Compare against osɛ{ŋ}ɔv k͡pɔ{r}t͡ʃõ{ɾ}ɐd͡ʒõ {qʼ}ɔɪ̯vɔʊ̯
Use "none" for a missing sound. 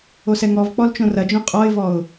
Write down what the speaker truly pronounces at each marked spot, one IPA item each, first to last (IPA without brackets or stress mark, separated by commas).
ŋ, l, r, qʼ